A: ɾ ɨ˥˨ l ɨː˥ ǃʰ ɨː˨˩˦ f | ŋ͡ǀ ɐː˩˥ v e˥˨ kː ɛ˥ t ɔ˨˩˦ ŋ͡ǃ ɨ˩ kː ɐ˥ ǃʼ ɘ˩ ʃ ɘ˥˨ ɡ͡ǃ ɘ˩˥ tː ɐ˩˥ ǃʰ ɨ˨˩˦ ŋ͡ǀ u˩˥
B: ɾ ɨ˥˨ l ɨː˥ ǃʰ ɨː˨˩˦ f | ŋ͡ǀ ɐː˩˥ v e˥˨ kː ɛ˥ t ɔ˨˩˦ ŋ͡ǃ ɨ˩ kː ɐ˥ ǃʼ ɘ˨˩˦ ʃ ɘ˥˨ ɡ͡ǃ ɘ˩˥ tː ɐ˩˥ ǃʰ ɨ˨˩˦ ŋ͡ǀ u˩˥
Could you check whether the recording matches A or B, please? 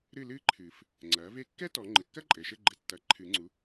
A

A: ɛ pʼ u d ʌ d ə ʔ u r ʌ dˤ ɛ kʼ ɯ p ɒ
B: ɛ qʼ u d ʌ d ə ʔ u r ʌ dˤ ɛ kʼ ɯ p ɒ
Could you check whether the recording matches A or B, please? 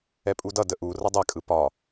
A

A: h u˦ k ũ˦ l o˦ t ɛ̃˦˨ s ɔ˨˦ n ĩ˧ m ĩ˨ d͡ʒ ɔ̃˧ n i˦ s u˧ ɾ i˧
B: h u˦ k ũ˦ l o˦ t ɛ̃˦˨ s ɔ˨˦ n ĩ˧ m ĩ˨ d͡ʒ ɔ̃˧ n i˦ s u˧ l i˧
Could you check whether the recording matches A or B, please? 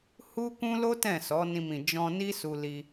B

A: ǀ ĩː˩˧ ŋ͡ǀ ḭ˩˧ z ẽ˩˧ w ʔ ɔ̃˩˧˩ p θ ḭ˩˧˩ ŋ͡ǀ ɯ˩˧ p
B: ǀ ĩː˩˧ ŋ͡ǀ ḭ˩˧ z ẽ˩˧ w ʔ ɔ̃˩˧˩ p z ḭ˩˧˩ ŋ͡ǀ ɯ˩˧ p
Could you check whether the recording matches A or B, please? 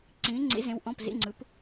B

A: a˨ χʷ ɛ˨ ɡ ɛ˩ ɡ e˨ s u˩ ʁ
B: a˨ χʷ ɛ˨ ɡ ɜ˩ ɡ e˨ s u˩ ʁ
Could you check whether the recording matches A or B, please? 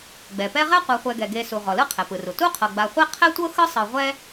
A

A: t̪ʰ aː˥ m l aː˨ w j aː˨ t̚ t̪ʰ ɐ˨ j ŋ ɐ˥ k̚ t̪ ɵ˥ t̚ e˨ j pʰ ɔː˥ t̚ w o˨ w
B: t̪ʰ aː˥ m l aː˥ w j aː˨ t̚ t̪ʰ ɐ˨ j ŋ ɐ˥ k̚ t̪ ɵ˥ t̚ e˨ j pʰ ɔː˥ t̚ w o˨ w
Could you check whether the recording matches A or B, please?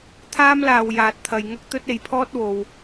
A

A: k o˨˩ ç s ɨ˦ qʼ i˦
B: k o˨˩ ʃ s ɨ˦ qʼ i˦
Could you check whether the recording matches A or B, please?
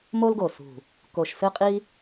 B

